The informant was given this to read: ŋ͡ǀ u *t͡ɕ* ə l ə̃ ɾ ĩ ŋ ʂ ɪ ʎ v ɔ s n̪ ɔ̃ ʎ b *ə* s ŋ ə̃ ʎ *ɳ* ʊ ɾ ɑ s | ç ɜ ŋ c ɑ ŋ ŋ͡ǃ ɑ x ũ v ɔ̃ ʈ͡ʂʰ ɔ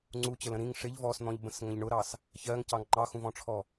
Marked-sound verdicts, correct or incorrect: correct, incorrect: ə̃, correct

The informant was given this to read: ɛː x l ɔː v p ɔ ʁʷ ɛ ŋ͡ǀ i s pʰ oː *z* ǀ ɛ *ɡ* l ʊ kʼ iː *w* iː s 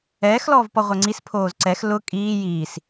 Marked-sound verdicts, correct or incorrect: correct, incorrect: x, incorrect: j

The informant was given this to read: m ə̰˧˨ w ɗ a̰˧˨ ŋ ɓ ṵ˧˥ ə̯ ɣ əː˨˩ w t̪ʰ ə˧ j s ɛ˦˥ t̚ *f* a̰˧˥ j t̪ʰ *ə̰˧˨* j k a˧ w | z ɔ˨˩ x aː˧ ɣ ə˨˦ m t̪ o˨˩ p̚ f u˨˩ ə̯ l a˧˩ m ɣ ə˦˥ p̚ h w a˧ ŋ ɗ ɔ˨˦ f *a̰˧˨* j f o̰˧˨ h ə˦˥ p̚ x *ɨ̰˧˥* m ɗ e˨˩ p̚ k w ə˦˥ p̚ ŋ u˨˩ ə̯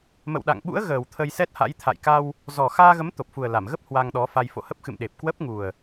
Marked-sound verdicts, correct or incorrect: incorrect: h, incorrect: a̰˧˨, incorrect: a˧, incorrect: ɨ̰˧˨

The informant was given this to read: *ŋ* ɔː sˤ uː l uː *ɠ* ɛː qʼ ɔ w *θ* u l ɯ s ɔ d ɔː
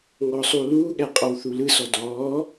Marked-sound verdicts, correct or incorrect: correct, correct, correct

